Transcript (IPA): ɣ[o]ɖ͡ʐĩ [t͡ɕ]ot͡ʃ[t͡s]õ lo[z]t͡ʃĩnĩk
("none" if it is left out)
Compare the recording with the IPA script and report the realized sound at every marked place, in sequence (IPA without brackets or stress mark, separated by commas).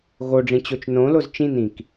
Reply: o, t͡ɕ, n, z